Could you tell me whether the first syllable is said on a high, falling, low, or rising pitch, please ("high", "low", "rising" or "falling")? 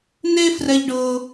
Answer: high